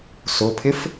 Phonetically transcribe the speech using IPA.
sʊpʰɪf

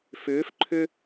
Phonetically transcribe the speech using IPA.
fʏːf ǃʰʏ

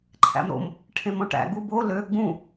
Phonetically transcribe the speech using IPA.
ǃʰæ̰mɾo̰m | ʈʰẽmõʈæ̰ ɡubo lø ɡ͡bũ

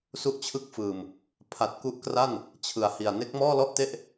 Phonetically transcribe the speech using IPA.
su˦˥ʔt͡ɕʰɯ˦˥k̚fɯː˨˩m | pʰa˨˩t̚ku˦˥ʔkra˥˩n | t͡ɕʰɯ˨˩a̯hi˨˩a̯ ne˦˥k̚mɔː˥˩lɔ˥˩ʔte˥˩ʔ

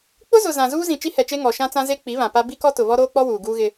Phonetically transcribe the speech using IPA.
k͡pʊ˦zʊ˨ zã˨zuː˦zĩ˨ t͡ʃi˦hɛ˨t͡ʃe˦ ŋɔ˨ʃã˦t͡sã˦ ze˦ k͡pi˨˦βã˨ pa˦ bi˦kɔ˦tʊ˨ βɔ˦ɾoː˦k͡pɔ˦ wuː˨ ɡuː˦ɣɪ˦

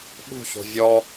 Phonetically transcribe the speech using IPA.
ɓṳço̤ vʲɔ

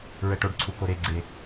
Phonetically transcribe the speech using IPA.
ɹɛʈoɖǀʰu koɾeɡ͡ǀe

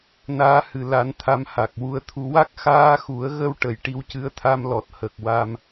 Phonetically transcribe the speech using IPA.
naː˧˥hɨ˨˩˨la˨˩˦n t̪ʰa˧˥mha˨˩k̚wu˧ə̯t̪ʰu˧ wa˦˥k̚xaː˧xu˨˩˦ə̯ɣə˧w ʈə˨˩jʈi˧˥wcɨ˧˥ə̯t̪ʰa˧m lɔ˨˩t̚hə˨˩k̚wa˧m

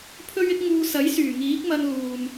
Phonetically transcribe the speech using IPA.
pʰɵ˥ɥɪ˥k̚ ŋuː˧sɐ˨˥jsyː˨˩ ŋiː˨˥k̚mɐ˧n luː˨m

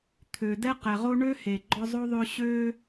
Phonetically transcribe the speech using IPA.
t̪ʰø˩ dɛ˥qɛ˩ʁo˥ ɳø˥ he˩ɡ͡ǃɔ˦zˤo˥ðˤø˦ ɕø˦

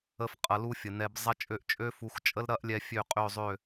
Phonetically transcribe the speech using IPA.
ə˧f qʼɐ˧lu˦fʲə˨nɛ˧b zˤɐ˦t͡ʃʼø˦˨ʔt͡ʃʼø˦fu˨˦x t͡ʃʼə˦lɾɐ˦ʔlʲɛ˧ fʲø˦˨qʼø˦˨zˤø˦˨

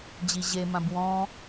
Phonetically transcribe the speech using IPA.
d͡ʑiʑe mãbwɔ̃

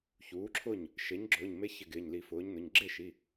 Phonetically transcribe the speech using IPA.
çuː˩˥ǁʰʊ˥˩ɲ | ʃe˩˥ɲɡ͡ǁʊː˩˧˩ɲme˧˥çɪ˧˩ ɡɪː˩˧˩ɲli˨˩˦fʊː˩˥ɲnʊ˩˧˩ɲ ɡ͡ǁe˥˩ʃi˩˧˩

